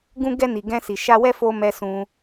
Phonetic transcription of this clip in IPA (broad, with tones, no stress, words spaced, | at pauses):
ɡũ˦ ɡɛ˧ni˨ɡɛ̃˧ si˨ʃa˧wɛ˦fo˧ mɛ˧sũ˧